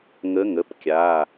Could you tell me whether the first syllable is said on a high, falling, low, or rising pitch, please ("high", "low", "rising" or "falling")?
rising